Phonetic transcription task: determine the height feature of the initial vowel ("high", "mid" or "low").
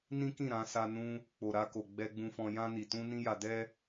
high